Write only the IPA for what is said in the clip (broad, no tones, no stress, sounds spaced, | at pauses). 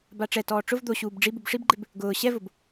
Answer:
b a ʈ͡ʂ ɛ t ɔː ʈ͡ʂ ʊ v d̪ o ɕ uː b ɖ͡ʐ i b u b ʂ i b ɡ͡ǃ ɪ b | ɡ ʊː ɕ ɛ v ʊ b